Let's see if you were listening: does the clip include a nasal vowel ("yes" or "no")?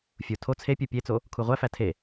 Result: no